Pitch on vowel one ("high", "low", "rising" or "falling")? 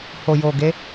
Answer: low